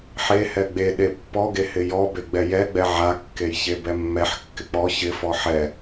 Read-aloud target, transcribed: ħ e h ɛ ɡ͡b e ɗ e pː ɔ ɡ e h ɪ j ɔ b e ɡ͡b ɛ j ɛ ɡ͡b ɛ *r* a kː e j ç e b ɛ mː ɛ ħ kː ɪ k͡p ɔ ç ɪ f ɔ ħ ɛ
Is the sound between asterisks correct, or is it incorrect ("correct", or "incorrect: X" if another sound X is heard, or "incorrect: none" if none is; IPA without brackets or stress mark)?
incorrect: ʕ